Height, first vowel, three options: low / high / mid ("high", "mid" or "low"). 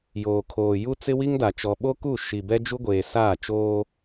mid